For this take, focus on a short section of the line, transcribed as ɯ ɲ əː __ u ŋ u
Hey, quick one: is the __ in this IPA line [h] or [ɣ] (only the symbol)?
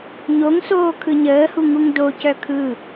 h